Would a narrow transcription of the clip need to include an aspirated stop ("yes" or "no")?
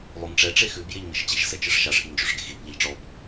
no